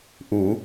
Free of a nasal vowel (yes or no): yes